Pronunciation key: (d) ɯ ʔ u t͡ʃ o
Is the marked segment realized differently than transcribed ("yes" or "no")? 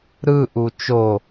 yes